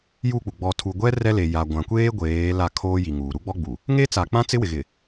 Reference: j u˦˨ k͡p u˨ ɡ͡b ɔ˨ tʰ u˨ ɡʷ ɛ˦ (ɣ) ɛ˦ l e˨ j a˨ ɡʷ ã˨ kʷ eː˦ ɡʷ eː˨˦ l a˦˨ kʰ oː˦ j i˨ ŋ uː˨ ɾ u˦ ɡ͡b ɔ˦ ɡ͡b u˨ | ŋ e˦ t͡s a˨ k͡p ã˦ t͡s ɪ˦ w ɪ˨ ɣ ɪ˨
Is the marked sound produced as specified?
no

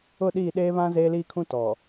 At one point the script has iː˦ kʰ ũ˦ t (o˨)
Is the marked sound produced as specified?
no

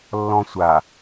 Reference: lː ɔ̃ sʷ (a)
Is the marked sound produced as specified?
yes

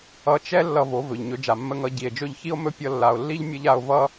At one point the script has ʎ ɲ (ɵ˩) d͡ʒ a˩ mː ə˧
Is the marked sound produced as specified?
no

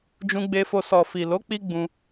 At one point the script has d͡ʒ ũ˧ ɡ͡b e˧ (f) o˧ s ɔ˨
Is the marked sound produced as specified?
yes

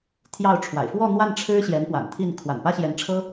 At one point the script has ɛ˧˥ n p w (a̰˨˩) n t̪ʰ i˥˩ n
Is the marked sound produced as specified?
yes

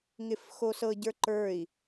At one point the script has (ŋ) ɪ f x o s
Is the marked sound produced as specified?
yes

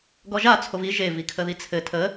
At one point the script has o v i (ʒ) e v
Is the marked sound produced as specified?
yes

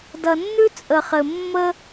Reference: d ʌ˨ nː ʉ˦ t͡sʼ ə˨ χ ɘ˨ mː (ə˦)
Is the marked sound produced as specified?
yes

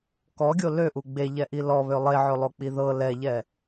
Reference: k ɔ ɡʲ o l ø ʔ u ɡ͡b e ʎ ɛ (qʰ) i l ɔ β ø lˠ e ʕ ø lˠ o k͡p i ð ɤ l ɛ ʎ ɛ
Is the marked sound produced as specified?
no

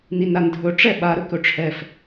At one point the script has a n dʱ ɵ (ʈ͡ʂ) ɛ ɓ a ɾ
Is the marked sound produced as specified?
yes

